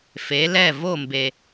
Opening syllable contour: rising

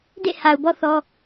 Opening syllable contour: falling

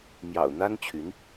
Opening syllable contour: low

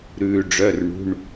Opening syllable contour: low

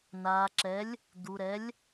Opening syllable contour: low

